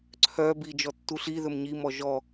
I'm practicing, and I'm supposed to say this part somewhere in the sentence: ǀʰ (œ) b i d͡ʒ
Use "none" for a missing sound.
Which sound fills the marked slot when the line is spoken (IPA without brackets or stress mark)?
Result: œ